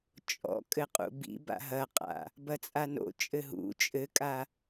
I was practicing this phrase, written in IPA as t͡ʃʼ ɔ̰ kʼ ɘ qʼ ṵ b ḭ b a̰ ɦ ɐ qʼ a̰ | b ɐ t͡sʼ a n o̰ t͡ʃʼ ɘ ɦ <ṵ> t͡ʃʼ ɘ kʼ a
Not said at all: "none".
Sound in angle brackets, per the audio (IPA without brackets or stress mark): ṵ